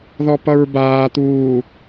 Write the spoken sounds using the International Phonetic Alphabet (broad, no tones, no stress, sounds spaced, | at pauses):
ð ɔ p ʌ ɹ b aː t̪ uː